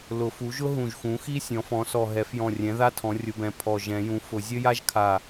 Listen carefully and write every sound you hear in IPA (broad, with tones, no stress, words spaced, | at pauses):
lʊ˨˩˦fu˩˥ʒʊ˥ ɦũ˧˩ʒxũ˩˥xi˥ sʲɔ̃˩˥fɔ̃˩˥sɔ˧˩ ɦɛ˨˩˦fjɔ̃˧˩rʲɛ̃˩˥ ða˥tʰɔ̃˩˥ rʲʊ˩˥bɛ̃˩˥ pʰɔ˧˩ ʒɛ̃˨˩˦jũ˩˥fʊ˨˩˦ zʲə˥ja˥ʒ kʰa˧˩